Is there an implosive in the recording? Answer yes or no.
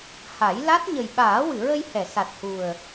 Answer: yes